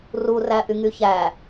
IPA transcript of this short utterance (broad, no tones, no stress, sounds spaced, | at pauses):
r u r æ ʔ y ŋ y ç æ